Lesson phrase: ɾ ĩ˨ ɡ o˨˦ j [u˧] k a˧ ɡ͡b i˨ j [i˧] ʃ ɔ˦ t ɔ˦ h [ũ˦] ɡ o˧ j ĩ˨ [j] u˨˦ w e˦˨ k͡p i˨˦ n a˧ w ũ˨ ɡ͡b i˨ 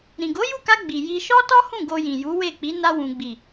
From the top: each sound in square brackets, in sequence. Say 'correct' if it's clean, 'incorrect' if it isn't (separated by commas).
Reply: incorrect, correct, incorrect, correct